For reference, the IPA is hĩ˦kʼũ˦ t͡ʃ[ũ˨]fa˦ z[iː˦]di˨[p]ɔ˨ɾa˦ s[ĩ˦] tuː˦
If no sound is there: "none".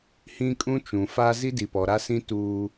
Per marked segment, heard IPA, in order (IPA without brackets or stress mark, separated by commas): ũ˨, i˦, p, ĩ˦